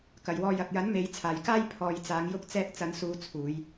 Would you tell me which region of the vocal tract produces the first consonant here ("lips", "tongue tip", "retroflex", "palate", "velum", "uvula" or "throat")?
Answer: velum